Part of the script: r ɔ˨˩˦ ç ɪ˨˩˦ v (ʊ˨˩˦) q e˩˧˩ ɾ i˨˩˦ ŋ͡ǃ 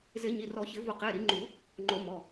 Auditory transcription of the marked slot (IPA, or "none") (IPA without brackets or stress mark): ʊ˨˩˦